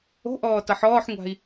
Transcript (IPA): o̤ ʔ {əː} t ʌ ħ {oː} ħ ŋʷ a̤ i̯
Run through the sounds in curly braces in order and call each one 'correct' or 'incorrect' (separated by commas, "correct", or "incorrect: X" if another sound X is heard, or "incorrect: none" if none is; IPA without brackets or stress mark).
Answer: incorrect: ɔː, incorrect: ɔː